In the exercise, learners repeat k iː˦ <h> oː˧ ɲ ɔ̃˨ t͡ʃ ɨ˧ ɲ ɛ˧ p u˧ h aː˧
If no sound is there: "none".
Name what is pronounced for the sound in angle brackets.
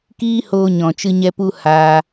h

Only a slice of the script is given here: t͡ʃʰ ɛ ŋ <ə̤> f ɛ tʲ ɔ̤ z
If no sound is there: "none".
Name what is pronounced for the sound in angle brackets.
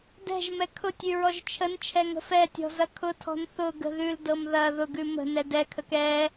ə̤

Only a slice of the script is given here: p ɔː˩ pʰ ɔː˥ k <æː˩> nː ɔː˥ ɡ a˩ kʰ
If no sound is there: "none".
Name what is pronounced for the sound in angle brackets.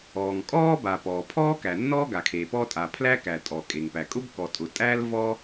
æ˩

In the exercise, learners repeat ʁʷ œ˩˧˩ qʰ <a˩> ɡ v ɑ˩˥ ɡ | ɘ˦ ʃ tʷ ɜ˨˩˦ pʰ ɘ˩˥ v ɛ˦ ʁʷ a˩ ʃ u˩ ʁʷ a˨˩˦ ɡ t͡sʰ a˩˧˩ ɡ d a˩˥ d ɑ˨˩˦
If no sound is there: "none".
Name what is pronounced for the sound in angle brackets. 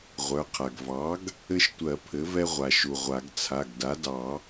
a˩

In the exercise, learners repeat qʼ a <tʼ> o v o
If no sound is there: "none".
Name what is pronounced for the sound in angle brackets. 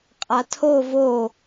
tʰ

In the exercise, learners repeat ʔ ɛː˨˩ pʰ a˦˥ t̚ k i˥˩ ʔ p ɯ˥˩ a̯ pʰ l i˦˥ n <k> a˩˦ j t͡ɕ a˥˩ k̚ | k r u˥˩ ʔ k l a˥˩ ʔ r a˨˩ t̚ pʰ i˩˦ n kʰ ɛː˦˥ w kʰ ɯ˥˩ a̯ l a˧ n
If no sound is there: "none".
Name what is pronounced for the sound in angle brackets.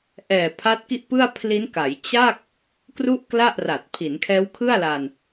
k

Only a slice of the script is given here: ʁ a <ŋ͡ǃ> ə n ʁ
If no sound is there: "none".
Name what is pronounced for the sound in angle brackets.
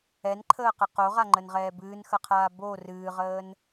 ŋ͡ǃ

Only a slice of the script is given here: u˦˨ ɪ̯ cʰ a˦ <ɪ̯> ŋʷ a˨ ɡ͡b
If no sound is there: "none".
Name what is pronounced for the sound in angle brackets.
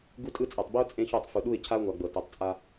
ʊ̯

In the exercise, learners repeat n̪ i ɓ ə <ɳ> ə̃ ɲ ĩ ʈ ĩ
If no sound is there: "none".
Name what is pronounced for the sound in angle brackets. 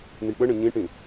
ɳ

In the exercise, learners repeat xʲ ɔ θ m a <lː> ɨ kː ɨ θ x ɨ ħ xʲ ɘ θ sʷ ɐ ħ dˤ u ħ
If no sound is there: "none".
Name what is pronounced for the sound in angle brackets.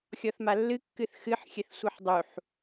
lː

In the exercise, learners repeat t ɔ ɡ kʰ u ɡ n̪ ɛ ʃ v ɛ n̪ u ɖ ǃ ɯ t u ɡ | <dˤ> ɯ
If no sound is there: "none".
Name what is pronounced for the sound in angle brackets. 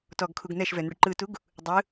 dˤ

